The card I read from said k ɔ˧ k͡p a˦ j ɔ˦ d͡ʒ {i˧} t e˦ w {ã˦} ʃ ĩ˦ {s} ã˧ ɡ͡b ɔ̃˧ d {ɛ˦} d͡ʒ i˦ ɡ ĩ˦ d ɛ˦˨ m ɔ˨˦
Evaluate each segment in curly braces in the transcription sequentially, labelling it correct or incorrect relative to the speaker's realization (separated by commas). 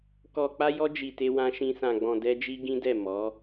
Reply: correct, correct, correct, correct